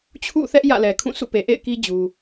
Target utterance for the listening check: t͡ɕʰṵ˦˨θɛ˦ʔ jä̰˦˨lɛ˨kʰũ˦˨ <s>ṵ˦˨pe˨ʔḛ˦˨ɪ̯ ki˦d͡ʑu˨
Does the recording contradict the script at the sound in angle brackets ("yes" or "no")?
no